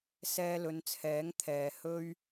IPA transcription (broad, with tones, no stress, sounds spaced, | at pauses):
s ɛː˧ l ɵ˨˧ n t͡sʰ ɛː˨˥ ŋ t̪ʰ ɛː˨ h ɵ˥ ɥ